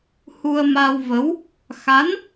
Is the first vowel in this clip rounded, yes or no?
yes